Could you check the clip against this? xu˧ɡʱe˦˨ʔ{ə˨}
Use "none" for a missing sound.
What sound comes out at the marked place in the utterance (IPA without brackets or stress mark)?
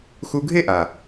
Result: a˨